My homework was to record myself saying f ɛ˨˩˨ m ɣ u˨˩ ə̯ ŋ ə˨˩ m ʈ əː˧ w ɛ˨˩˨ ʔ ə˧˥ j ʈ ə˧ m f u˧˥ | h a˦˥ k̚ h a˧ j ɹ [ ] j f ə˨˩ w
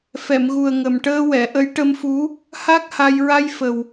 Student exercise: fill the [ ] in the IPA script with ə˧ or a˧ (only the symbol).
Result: a˧